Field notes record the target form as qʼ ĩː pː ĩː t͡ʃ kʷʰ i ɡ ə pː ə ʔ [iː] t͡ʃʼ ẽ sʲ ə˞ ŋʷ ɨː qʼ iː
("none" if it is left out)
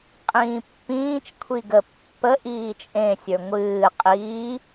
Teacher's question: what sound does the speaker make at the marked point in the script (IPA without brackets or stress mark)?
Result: iː